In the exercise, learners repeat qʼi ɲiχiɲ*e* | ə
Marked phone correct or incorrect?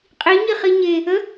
correct